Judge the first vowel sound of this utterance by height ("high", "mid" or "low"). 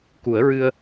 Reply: high